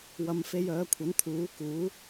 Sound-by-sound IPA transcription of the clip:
w ɐ˧ m f e˧ j œː˨˥ kʷʰ ɐ˨˥ n t̪ʰ uː˨˥ k uː˨˥

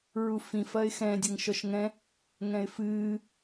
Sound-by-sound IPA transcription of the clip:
ɹ u f ĩ f ɐ ɪ̯ x ɛ̃ dʲ ɘ ŋ ʃ ɔ ʃ ŋ ɛ̃ | ŋ ɛ̃ ɪ̯ f ɨː

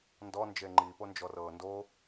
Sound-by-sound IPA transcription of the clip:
n d ɔ n d͡ʒ e ŋ͡ǃ i p o n d͡ʒ ɔ r ɤː n d o

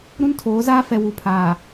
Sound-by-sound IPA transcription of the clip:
ɾ ũ˦ n tʰ oː˨˦ z aː˦ f ɛ˨ w u˨ pʰ aː˨

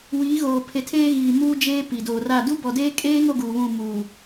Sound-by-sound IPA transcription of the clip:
w iː˨˦ ɣ oː˨ pʰ e˨ tʰ eː˦ ɣ iː˨ m uː˦ d͡ʒ eː˦ p i˨ d oː˨ r a˦˨ d u˦ b ɔ˨ d eː˦ kʼ eː˦ ŋ o˦ ɡ uː˨ β ũ˦˨ m uː˨

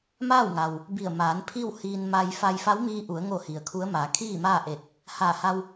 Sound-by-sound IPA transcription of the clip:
m aː˥˨ w ŋ a˩ w | b i˧˩ ə̯ m aː˩˧ n pʰ i˥˨ w h iː˧ n m a˧ j f a˧ j f a˧˥ w m iː˧ ʔ u˩˧ ə̯ ŋ o˧˩ h i˩ ə̯ kʰ u˧˥ ə̯ m aː˩˧ kʰ iː˥˨ m aː˥˨ ʔ e˧˩ t̚ | h aː˧˩ h a˧ w

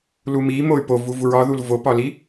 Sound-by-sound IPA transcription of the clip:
l u m i m o y̯ p o v u v u ɹ ɒ ð u l v o p ɒ l i

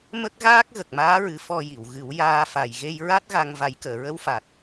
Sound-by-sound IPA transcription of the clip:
m ə˦˥ k̚ ɣ aː˦˥ k̚ ɣ ə˨˩ k̚ m aː˧˥ ɹ ɨ˨˩˦ f ɔ˧ j i˨˩˨ w ɣ ɨ˨˩˦ w j aː˧ f a˨˩ j ɣ e˧ j ɹ a˦˥ t̚ ɣ a˧ ŋ v a˨˩˦ j k əː˨˩˨ ɹ ə˧˥ w f a˨˩ t̚

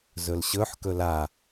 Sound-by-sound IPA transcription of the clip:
z ɵ l ɕ ɵ ħ k ɵ l a

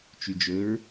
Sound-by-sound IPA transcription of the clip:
t͡ʃ y d͡ʒ ɵ ɹ

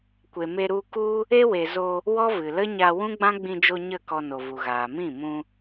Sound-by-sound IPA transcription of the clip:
kʷ e˨ m e˧ ɾ u˧ k u˦ | e˦ w e˨ z o˧ | w ɔ˦ v ɨ˨ l ə˦ ɲ a˧ w ũ˦ ɡ͡b ã˦ ɡ͡b ĩ˧ d͡ʒ o˧ ɲ ə˦˨ k ɔ˧ n o˨ v u˨ ɣ aː˨ m ĩ˦˨ m ũ˧

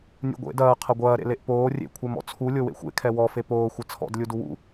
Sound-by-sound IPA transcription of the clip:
nʲ ṵ ɡʷ ḛ d ɐː qʰ ɐ ɡʷ ɐː ɾ ḛ l e ʔ p oː rʲ ḛ kʷʰ e m ɔ̰ t͡sʰ u lʲ o w ḛ xʷ ḛ kʰ ɛ w ɔ f e p oː xʷ ɐ t͡sʰ ɔ̰ d lʲ u d u w ṵ

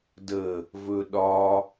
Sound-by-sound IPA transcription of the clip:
d ə | v ɵ ɗ ɒ

